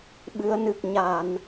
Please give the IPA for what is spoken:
ɓɨ˨˦ə̯nɨ˨˩k̚ ɲa˧˩˨n

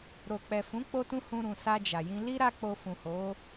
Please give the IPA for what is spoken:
ɾo˨k͡pɛ˨fũ˨˦ k͡po˦tũ˦ hũ˧ɾũ˨ sa˧d͡ʒa˨jĩ˧ li˦ ɾa˦k͡po˧ fũ˨ho˨˦

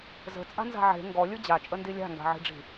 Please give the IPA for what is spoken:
zə̤t͡sʼa̤nza̤ ʕe̤ ŋɡɔlʲɯ d͡ʑat͡ʃʼəndi lʲa̤ŋɡa̤ʕi̤ɖ͡ʐi̤

